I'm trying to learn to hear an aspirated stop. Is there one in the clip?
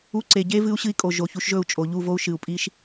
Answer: no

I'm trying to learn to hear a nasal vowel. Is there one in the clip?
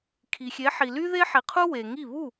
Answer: no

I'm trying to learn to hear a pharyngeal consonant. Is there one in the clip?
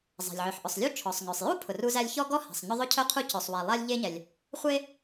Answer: yes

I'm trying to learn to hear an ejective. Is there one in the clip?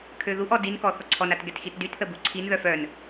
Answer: no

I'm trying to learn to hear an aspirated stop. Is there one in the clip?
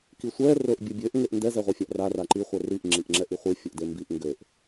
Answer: no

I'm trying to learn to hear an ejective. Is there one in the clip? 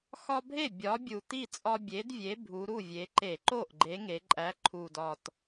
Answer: yes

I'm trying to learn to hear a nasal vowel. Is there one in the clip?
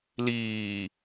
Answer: no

